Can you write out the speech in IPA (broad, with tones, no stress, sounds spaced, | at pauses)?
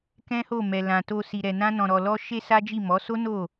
k ɛ̃˦ h o˦˨ m ɛ˨ l ã˨ t o˧ s i˧ ɾ ɛ˧ n ã˦ n ɔ̃˧ ɾ ɔ˧ l ɔ˦ ʃ e˦ s a˦ d͡ʒ i˦˨ m ɔ˨˦ s o˦ n o˦˨